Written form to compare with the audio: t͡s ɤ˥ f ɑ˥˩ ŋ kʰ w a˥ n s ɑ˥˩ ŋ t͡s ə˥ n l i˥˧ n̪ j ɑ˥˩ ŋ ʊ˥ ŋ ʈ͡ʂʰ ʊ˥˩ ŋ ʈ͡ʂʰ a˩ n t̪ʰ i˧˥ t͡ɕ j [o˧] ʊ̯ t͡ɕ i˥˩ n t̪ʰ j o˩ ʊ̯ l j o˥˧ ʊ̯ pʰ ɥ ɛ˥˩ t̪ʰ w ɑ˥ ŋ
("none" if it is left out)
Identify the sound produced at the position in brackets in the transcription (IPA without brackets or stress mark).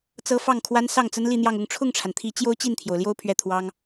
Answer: o˥